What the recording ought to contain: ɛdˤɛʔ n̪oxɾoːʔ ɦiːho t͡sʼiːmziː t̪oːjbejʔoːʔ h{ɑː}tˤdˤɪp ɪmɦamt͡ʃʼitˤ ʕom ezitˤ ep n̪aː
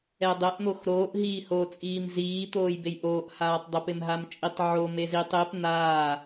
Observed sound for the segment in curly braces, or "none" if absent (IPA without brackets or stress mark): aː